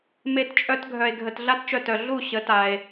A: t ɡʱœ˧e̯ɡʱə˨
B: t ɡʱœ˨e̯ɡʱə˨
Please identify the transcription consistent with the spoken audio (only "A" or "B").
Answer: B